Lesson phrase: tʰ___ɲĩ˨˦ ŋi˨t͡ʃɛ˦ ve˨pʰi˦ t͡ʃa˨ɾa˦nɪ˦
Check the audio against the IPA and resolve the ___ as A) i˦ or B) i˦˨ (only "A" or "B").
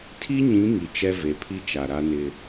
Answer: A